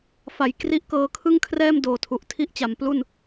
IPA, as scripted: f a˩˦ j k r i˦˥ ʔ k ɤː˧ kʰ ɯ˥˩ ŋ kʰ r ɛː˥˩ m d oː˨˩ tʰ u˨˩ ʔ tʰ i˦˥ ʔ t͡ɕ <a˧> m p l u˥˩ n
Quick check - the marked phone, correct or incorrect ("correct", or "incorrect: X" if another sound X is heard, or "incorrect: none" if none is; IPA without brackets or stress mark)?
incorrect: a˩˦